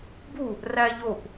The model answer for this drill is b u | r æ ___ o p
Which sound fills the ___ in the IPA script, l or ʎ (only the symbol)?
ʎ